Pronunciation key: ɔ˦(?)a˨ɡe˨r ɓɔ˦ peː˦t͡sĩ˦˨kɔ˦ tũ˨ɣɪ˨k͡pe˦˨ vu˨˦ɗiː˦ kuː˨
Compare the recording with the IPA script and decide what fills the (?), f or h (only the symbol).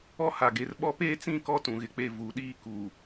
h